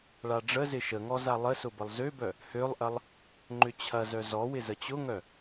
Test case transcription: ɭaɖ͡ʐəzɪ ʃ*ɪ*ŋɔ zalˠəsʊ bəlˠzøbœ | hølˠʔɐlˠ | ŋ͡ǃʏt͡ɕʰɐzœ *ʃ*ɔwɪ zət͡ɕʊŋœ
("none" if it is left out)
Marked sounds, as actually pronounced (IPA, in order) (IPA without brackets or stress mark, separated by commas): ə, z